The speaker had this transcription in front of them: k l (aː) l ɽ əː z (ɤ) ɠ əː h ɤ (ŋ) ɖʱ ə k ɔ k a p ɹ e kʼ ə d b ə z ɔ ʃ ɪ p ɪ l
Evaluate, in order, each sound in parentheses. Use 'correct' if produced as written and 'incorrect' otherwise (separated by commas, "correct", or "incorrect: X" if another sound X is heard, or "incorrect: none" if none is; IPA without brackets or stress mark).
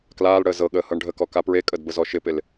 correct, correct, incorrect: ɳ